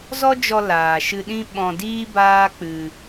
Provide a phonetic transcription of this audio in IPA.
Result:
z ɔ˦ d͡ʒ ɔ˧ l aː˨ ʃ ɨ˧ ɗ ĩ˦ ɓ ɔ̃˧ d iː˦ b aː˦ k͡p ɨ˧

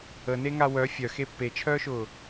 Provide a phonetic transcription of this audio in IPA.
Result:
ə n e ŋ a w œ fʲ œ x e pː e t͡ʃʰ œː ʃ ʊː

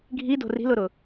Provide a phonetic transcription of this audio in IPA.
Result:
ɡʱ i d o̤ r i̤ l ʊ ɾ ʊ

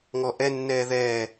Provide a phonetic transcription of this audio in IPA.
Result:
ŋ ɔ ʔ ɛ nː ɛː ð ɛː

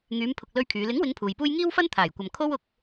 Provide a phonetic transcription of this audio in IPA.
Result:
ŋ yː˨˧ m pʰ ʊ˨ k̚ l ɵ˥ ɥ kʰ yː˨˧ l ɪ˨˥ ŋ w ɪ˨˧ ŋ pʰ uː˨ j p uː˥ j ŋ iː˥ w f ɐ˥ n t̪ʰ aː˨˩ j kʷ ɐ˨ m kʰ o˥ w ʊ˧ k̚

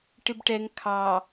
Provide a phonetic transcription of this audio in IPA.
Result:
ʈ ɪ b ʈ ɛ ŋ kʰ ɑ

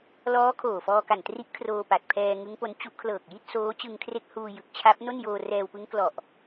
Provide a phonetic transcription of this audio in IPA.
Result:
l ɔː˦˥ kʰ oː˨˩ f ɔː˧ k a˨˩ n t r i˦˥ ʔ kʰ r oː˧ p a˨˩ t̚ pʰ ɛː˧ ŋ ɯ˦˥ ŋ p o˦˥ n t͡ɕ u˦˥ ʔ kʰ l ɤː˨˩ k̚ j i˥˩ t̚ s oː˦˥ t͡ɕ ɯ˧ ŋ kʰ r e˦˥ k̚ h uː˧ j ɯ˨˩ k̚ t͡ɕʰ a˦˥ p̚ n o˥˩ n j oː˧ r ɛː˧ w p ɯ˦˥ ŋ k l ɔ˨˩ ʔ

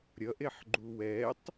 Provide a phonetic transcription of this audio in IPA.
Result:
ɾʲ ʌ ʔ e ħ ɡ͡ǃ u w ɛ tˤ

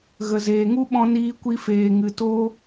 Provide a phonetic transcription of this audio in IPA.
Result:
ɣ ə˨ z eː˨ ŋ u˦ ɓ ɔ̃˧ n iː˧ kʷ i˧ f eː˨ ŋ ɨ˨ t o˦

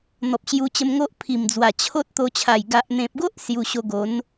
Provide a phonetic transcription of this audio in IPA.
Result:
n̪ ɔ˨ p̚ ɕ j u˧ t͡ɕ ə˧ m ŋ o˦ ʔ pʰ i˨˩ m d͡z w a˨˩ t͡ɕʰ o˦ t̚ t̪ o˧ t͡ɕʰ a˨˩ j ɡ a˨ ʔ n̪ ẽ˨ p̚ ɡ o˦ ʔ s j u˧ ɕ o˧ ɡ o˨˦ n

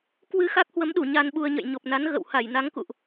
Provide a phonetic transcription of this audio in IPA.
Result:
k w ɨ˧ x a˦˥ k̚ h w ə˨˦ m ɗ u˧˩ ɲ a˧ n ɓ u˧ ə̯ ɲ ə̰˧˨ j ɲ o˨˩ p̚ n a˨˦ n ɣ ə̰˧˨ w h a˧˩ j n a˨˦ ŋ k ṵ˧˨ ʔ

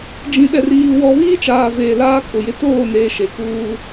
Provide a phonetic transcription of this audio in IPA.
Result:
d͡ʒ ĩ˨ ɗ ɛ˨ r iː˨ w ɔ˨ β iː˦ t͡ʃ aː˨ v eː˨ l aː˦ kʼ ʊ˨ j ɪ˨˦ t oː˦˨ n eː˨ ʃ e˨ k uː˦

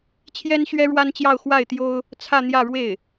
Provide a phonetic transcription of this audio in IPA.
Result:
t͡ɕʰ j ɛ˥ n ɕ ɥ ɛ˥ ɻ w a˥ n t͡ɕ j ɑ˥˧ ʊ̯ x w a˥˩ ɪ̯ t̪ j o˥ ʊ̯ | t͡sʰ ä˥˧ n̪ j ä˥˧ ɻ w e˥˩ ɪ̯

